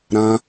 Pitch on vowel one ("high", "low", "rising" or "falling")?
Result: high